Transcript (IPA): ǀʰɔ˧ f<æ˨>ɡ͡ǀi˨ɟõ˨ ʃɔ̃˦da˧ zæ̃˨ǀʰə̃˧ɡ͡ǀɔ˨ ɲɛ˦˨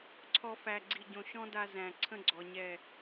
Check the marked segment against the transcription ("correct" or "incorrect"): correct